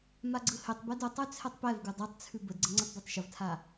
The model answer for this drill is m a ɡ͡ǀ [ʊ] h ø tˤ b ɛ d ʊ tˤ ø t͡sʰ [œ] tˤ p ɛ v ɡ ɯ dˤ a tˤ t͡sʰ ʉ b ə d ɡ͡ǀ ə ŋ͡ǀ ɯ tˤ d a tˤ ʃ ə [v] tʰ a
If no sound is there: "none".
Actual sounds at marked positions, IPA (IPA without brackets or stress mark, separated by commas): ɯ, ɛ, v